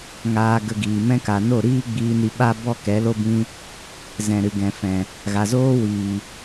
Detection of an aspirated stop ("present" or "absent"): absent